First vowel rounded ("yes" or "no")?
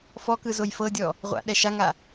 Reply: yes